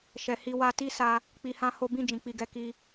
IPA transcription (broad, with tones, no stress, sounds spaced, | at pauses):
ʃ ɛ˨ h i˧ w a˧ t i˦ s a˧ | k͡p i˧ h ã˦ h o˦ b ĩ˦˨ d͡ʒ ĩ˨ k͡p i˧ ɡ ɛ˦ k i˧